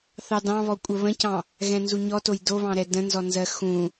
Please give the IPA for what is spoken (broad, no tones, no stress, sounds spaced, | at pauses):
θ ɑ d ɑ̃ β ɔ kʷʼ ə β ə̃ c ɑ̃ | ɣ ɛ̃ n z u ɲ ɔ t o j d o β ɑ̃ ɾ ɛ d ə̃ n z ɔ n z ɜ x ũ